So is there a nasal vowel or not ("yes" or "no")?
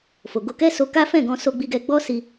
yes